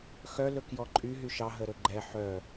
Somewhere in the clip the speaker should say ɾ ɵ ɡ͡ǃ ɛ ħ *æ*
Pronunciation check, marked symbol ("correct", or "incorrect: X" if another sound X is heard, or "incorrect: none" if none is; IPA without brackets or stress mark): incorrect: œ